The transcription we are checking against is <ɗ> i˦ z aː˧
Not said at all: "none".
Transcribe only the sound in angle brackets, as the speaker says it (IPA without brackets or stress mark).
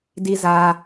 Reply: d